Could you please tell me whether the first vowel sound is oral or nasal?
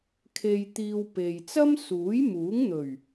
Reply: oral